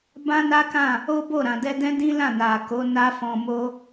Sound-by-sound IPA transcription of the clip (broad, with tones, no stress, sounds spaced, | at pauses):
b ã˦ n a˦ k ã˦˨ | o˦ b o˦˨ ɾ ã˨ d ɛ˧ d ɛ̃˦ d ĩ˦ l ã˦˨ n a˨ k o˨˦ n a˦ f ɔ̃˧ m o˦